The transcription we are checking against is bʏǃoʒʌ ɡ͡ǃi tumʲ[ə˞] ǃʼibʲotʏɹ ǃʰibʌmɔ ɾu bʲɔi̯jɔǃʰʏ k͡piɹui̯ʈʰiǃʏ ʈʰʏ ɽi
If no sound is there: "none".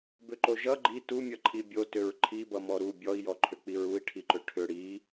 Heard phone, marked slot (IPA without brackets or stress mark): ʌ